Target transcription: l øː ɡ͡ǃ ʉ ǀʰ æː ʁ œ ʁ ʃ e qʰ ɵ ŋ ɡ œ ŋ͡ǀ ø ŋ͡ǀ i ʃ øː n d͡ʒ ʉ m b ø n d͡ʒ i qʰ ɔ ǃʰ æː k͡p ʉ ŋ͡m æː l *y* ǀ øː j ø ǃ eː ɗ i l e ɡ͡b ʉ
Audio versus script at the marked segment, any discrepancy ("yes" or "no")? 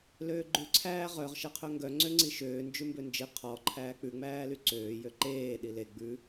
no